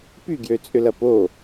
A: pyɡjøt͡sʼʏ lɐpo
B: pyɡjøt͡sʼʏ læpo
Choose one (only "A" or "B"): A